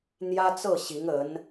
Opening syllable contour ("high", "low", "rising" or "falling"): high